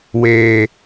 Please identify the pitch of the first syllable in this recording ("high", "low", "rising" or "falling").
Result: low